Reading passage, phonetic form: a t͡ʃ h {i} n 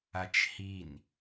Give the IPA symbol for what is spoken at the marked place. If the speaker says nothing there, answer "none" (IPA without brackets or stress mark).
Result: i